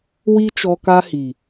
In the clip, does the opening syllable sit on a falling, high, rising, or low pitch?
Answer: high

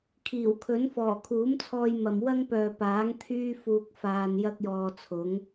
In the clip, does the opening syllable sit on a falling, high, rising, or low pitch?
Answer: low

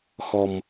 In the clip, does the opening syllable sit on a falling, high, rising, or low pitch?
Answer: low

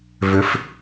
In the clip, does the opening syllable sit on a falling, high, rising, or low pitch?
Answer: rising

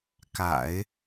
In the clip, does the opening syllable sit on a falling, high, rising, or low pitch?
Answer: low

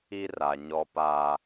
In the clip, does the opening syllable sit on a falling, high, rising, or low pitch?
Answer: high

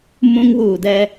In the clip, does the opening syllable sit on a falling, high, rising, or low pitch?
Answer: high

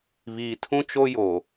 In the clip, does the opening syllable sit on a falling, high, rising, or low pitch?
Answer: low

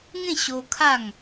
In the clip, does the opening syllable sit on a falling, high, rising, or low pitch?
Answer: falling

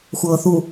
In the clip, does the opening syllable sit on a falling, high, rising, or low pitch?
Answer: low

